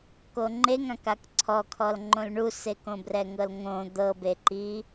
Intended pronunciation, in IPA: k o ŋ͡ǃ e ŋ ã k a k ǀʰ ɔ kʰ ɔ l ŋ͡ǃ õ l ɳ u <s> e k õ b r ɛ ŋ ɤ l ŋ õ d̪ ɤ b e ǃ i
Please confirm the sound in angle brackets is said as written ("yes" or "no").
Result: yes